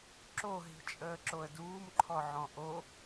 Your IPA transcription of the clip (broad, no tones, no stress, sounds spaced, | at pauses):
ǁ o ɦ i̤ t͡ʃʼ əː ǁ o ə̯ d uː m ǃʰ ɔ ʕ ɔ̃ ʔ o